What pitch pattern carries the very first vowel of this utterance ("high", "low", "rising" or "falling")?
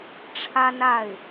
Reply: high